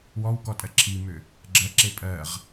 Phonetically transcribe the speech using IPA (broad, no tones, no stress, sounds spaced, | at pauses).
w ɔ w k ɔ tʼ ɜ ǁʰ i m ʏ | ɡ͡ǁ ɜ ǁ e pʼ ɜ ʁ